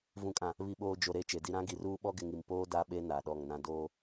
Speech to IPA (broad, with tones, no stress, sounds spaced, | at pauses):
v ũ˨ kʼ ã˨ | β i˨ ɓ oː˨ d͡ʒ o˨ ɾ e˦˨ t͡ʃ e˨ d i˦ ɾ ã˦ ɡ i˨ r uː˦ ɓ ɔ˦ ɡ ɪ˨ ŋ i˨ m p oː˦ d a˦ ɓ e˦ n a˨ ɗ ɔ˦˨ ŋ n ã˦ d oː˦